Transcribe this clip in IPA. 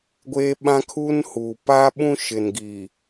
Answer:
ɡʷeː˦ɓã˦kʰuː˦nhuː˨ pa˦ɓũ˦ʃɪ˨nɡi˨

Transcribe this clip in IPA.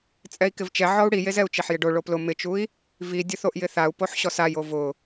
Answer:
t͡sʼɛi̯kɪvt͡ʃɛ ʕɔu̯ɽijezɛu̯ t͡ʃeħjɪɖo ɭoplʊ mɪt͡ʃui̯ | vidʲʊ θoʔjɪθau̯ poħɕɔsajo vʊ

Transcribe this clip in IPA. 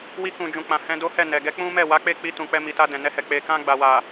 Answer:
wi˧kũ˨d͡ʒũ˨ k͡pã˨hɛ̃˧do˦hɛ˦˨ nɛ˨ɡɛ˨˦ k͡pũ˦mɛ˦˨ wa˨˦k͡pe˦˨k͡pi˧ tũ˨k͡pɛ˧mi˨ta˧ dɛ̃˨nɛ˧hɛ˨ k͡pe˨ kã˧ɡ͡ba˨wa˨

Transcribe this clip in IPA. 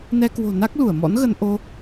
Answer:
nɛ˧kwo̤˨˩ na˦˥k̚lu˧˩ə̯mɔ̰˧˥nɣə˧n ʔo˧

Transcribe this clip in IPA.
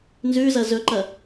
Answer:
nzʉzɐ zɵǃɐ

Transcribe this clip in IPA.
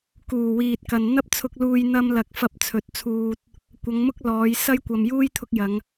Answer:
kuː˨˩wiː˨t̚kɐ˨n n̪ɐ˧p̚t͡sʰʊ˨k̚luː˨j n̪ɐ˧mlɐ˨˥k̚ fɐ˧p̚t͡sʰɵ˨˥t̚t͡sʰuː˧t̚ | kʷɐ˨˧ŋmʊ˥k̚lɔː˨˧j sɐ˥jkʷɐ˨mjuː˥j t̪ʰʊ˧k̚jɐ˨˧ŋ

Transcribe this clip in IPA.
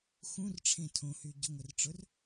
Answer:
xũrʈ͡ʂʰẽ tʰõhy ɟʊŋʷɪrʈ͡ʂʊr

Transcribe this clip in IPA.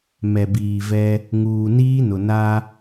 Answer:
mɛ˨biː˨vɛ˦ | ŋuː˨niː˦nʊ˨ na˦

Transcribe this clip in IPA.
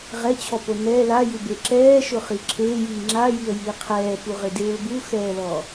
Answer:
ʁɛt͡ɕʰɔpo nɛ lajube ǁɛːʃʊχi ǁʰeːjiː ŋ͡ǁajiə̯jiː qʰɛːpuʁɪdeːʊ̯ buxɛːlɔ

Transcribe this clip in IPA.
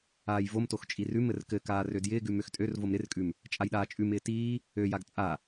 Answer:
aːjvomtox t͡ʃʼirʉmɘr kɘkaː rødjɪːɡʉ møxtʼørvom ɾɪrkʼʉm | t͡ʃʼajɗaːt͡ʃʼʉmɪː tiː | øjaɡ t͡sʼa

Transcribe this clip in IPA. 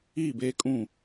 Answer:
iː˦˨beː˦kʼũ˦˨

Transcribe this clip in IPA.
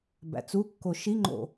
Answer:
bæ̰t͡sukːo ʃiŋ͡ǃo̰

